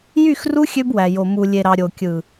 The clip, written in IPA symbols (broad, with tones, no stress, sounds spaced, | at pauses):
j y˦˨ x r u˦ xʲ ø˦ b w æ˨ j o˨ m u˨ lʲ e˨ ɾ ɑ˨ ɾʲ o˨ kʲ ɯ˨